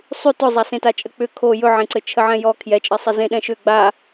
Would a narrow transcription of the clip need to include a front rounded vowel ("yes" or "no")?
yes